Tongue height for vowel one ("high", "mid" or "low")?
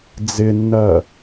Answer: high